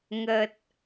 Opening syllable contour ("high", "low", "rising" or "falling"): low